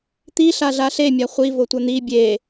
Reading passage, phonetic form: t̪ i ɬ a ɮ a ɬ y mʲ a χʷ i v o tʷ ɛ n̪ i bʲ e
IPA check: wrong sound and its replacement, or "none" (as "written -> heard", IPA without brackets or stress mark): y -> e